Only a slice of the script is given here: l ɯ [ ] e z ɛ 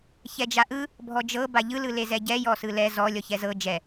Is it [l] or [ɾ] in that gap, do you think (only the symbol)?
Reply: l